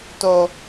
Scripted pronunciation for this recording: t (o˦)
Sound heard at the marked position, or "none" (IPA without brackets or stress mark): o˦